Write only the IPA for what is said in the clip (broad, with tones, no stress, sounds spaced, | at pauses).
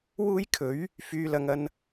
w uː˥ j kʰ ɵ˨˥ ɥ | f yː˧ l ɐ˧ ŋ ɐ˧ n